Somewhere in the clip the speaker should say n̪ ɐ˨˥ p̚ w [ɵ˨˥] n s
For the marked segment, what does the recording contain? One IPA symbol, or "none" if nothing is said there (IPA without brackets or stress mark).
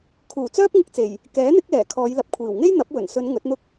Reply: ɵ˨˩